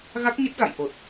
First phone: ɣ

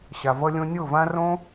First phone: ɕ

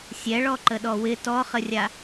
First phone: sʲ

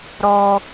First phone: ɾ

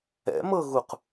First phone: ɛ̰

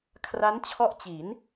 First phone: kʰ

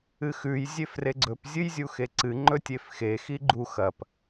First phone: ɨ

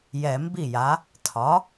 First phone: j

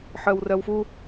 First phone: ħ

